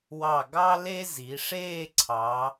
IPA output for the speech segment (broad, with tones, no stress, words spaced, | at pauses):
wɑ˧˩ɡɑ˥le˥zi˩˧ ʂeː˥˧ǀʰɑ˩˧